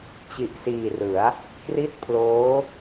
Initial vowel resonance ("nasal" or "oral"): oral